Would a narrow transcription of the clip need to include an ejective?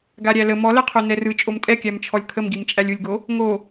yes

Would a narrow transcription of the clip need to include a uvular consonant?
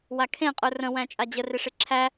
yes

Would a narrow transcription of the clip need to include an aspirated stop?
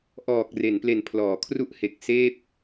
yes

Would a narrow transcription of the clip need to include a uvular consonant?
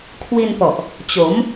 no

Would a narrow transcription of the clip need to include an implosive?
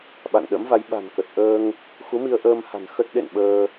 yes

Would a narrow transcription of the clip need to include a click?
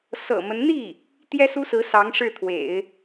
no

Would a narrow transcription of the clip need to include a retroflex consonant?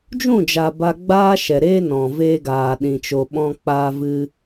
no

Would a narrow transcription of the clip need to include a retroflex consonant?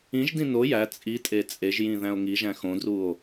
no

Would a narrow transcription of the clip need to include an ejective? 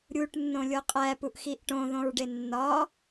yes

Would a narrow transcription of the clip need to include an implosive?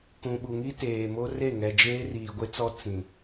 yes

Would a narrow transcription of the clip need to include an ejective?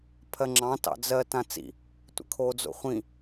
no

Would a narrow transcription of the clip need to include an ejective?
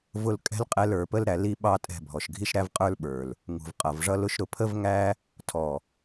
yes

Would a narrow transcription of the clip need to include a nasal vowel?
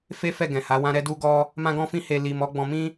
yes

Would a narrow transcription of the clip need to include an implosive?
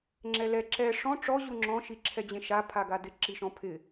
no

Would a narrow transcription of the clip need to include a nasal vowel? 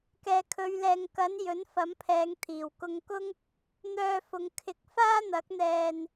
no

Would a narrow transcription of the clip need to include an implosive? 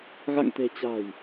no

